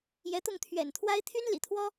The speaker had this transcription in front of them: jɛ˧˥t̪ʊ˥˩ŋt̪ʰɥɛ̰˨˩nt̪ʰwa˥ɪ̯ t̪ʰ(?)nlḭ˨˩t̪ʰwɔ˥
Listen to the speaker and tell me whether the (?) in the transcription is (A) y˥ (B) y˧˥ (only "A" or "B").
A